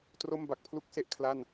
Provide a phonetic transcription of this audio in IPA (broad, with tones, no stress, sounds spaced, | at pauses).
t r o˥˩ m b a˨˩ k̚ pʰ l u˥˩ k̚ s e˥˩ ʔ kʰ l a˥˩ n